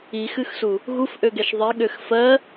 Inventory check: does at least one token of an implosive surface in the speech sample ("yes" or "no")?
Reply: yes